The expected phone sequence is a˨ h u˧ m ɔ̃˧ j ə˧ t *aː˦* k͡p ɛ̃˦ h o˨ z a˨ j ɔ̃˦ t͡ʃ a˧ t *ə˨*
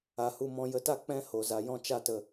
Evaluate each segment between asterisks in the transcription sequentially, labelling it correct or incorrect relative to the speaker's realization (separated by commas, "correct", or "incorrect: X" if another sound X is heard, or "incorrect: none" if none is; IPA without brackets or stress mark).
incorrect: a˦, correct